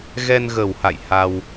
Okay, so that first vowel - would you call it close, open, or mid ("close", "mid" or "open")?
mid